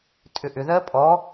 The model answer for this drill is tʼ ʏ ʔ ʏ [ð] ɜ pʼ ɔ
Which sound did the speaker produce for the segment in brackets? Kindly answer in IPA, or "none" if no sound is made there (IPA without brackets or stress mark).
ð